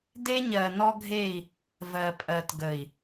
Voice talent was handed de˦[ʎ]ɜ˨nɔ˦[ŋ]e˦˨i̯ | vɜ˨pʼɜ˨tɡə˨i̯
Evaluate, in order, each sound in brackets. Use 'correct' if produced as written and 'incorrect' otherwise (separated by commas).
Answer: incorrect, incorrect